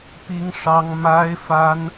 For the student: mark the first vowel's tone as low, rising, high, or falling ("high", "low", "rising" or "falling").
high